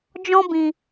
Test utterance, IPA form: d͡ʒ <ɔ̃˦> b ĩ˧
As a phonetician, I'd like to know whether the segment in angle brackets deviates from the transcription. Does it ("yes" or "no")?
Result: no